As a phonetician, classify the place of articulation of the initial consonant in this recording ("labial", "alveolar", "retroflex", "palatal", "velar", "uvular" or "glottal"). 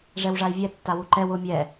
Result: retroflex